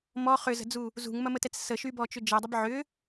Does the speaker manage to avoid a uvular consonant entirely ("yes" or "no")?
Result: no